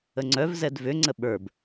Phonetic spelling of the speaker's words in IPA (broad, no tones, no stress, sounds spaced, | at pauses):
ə ŋ͡ǀ œ v z ɛ d v ʏ ŋ͡ǀ ə ɓ ə˞ b